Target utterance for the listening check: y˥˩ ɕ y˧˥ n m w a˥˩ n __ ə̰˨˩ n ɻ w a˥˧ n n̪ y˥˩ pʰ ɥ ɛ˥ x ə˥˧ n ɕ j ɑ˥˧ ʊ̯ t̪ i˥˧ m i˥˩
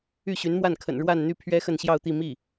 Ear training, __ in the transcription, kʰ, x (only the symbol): kʰ